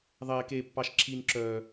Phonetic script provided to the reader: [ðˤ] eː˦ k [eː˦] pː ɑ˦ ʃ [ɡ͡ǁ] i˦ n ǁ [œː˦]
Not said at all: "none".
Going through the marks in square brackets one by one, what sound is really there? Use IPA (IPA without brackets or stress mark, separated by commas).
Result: ðˤ, eː˦, ǁʰ, œː˦